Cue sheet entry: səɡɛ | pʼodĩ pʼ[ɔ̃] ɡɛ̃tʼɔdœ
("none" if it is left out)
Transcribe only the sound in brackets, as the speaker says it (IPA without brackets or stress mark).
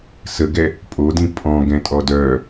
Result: ɔ̃